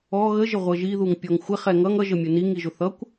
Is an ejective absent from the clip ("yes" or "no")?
yes